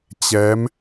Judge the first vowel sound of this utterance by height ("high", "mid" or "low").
mid